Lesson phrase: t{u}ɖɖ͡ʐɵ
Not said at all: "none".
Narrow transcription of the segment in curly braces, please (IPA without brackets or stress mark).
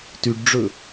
y